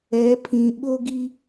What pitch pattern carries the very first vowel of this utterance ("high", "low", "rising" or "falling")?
rising